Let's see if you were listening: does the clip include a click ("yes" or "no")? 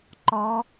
yes